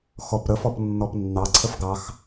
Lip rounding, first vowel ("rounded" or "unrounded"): rounded